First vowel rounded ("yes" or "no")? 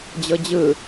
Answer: no